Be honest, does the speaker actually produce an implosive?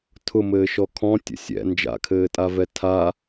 no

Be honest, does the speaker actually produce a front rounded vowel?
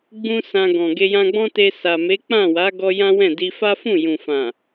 no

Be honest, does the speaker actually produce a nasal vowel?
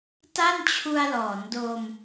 no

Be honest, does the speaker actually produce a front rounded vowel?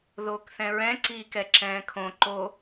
no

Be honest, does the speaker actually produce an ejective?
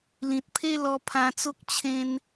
no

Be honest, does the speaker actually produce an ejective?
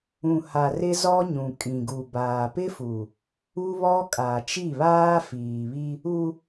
yes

